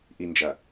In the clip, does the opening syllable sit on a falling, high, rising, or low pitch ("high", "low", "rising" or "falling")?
low